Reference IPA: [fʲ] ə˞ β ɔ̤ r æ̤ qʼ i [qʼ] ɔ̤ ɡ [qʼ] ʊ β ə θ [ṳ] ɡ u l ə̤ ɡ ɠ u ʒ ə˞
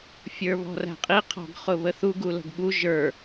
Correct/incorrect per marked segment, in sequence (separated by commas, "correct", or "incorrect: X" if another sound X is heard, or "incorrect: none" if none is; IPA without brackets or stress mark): correct, incorrect: qʰ, incorrect: χ, incorrect: u